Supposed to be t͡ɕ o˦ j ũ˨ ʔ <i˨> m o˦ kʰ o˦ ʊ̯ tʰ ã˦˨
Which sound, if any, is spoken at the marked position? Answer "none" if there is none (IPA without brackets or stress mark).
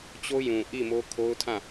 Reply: i˦˨